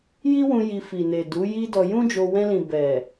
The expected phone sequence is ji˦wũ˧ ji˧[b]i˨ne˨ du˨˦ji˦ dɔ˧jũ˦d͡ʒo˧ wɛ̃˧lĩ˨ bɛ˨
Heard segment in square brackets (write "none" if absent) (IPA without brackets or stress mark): f